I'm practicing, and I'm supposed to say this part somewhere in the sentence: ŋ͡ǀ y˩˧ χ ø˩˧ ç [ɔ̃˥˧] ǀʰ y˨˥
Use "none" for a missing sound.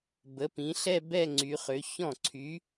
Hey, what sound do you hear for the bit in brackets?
ɔ̃˥˩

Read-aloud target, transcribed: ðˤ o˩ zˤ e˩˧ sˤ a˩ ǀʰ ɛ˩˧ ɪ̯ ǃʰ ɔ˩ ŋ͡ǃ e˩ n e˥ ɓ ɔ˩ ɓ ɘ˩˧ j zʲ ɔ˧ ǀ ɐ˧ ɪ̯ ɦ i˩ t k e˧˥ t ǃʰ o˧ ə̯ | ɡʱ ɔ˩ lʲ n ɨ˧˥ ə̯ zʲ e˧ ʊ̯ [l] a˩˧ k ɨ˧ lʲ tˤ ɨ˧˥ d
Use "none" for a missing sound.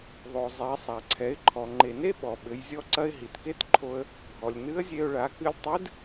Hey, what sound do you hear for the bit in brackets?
ɭ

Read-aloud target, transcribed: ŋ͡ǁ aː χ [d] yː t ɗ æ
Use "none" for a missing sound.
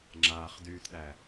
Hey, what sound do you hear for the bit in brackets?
d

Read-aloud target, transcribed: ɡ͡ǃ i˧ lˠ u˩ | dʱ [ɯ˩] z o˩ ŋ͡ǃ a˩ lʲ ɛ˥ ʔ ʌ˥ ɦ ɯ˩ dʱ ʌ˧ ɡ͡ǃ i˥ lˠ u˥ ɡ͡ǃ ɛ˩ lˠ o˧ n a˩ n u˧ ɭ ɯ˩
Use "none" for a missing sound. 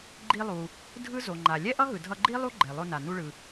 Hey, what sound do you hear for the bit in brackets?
ɯ˥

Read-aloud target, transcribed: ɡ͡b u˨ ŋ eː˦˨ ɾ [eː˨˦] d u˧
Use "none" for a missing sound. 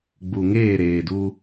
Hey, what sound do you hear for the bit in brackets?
eː˨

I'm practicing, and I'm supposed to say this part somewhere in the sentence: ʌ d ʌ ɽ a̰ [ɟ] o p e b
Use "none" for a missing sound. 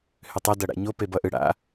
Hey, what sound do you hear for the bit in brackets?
ɲ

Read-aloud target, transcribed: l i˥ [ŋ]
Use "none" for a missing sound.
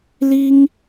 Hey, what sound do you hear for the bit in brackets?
ŋ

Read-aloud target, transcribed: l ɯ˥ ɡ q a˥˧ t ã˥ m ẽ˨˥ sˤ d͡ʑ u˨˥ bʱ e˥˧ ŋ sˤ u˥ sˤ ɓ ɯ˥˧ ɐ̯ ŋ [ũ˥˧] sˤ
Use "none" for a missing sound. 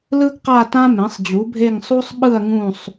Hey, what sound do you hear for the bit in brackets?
ũ˥˧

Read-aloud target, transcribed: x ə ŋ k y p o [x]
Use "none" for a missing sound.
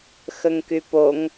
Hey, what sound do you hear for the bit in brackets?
ŋ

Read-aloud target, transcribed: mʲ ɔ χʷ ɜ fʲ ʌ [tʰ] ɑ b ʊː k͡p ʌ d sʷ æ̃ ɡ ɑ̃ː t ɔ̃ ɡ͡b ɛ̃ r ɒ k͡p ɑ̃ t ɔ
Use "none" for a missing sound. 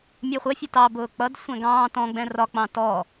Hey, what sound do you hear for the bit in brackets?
t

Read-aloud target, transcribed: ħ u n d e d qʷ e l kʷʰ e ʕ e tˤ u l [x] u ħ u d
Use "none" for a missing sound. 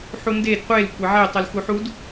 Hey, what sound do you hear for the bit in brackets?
x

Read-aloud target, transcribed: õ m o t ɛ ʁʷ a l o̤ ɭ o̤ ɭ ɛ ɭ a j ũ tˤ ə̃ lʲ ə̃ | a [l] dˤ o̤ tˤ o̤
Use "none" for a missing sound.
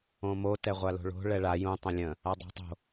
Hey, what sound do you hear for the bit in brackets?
none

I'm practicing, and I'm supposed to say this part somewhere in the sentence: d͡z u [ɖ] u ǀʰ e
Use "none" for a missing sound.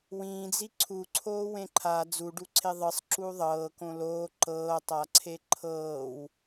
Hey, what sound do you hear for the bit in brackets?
ɖ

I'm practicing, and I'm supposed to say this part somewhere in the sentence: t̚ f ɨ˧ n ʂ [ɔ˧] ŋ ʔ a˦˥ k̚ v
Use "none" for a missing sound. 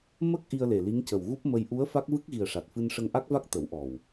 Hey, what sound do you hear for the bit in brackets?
ə˧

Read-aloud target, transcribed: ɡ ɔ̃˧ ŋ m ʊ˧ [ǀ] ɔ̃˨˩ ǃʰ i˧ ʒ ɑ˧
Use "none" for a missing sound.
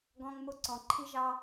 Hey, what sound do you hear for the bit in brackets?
ǀ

